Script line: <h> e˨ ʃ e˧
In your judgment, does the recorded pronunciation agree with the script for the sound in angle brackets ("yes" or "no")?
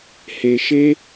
yes